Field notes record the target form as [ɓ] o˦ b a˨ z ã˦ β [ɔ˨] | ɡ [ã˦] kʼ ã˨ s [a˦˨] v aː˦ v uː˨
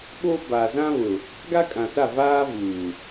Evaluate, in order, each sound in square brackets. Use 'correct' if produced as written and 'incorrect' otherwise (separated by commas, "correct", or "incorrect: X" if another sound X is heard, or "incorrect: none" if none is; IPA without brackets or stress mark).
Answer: correct, incorrect: ʊ˨, incorrect: a˦, correct